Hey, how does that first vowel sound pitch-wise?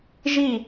falling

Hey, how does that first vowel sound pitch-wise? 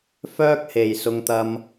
high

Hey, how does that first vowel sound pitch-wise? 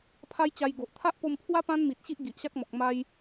high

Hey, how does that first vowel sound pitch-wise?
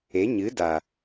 rising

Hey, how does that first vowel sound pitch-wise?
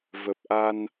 low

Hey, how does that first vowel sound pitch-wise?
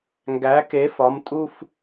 rising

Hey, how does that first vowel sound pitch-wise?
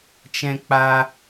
high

